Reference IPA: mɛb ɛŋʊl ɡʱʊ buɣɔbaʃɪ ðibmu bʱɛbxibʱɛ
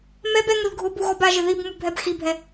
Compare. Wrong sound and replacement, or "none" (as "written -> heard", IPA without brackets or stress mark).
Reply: ʃ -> ʒ